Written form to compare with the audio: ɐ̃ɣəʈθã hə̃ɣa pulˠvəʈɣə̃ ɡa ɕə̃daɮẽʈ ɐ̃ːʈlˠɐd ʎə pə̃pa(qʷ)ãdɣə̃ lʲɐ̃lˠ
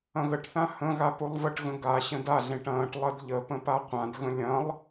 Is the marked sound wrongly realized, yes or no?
no